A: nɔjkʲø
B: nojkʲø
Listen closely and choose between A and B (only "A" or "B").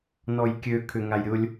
A